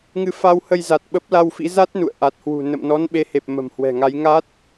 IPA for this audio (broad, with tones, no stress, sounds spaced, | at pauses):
ŋ ɨ˨˦ f a˧ w h ə˧ j z a˨˩ t̚ ɓ ə˦˥ p̚ l a˧ w f ḭ˧˥ z a˦˥ t̚ n ṵ˧˨ ə̯ ʔ a˨˩ t̚ h w ṳ˨˩ n ə̰˧˨ m n ɔ˨˦ n ɓ e˨˦ h e˨˩ p̚ m ə̤˨˩ m h w ɛ̤˨˩ ŋ a˨˦ j ŋ a˦˥ t̚